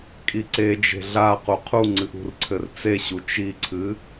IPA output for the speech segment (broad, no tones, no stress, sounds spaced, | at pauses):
kʼ i ǀ e d͡ʒ e̤ ɮ a q u qʰ u ŋ͡ǀ ɨ ʔ ṳ r ǀʰ ɘ r t͡s e ɕ u t͡ʃ i ǀʰ ɨ